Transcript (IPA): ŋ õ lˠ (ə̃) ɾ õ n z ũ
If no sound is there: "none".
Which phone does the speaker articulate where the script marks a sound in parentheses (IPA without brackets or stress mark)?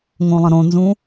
ə̃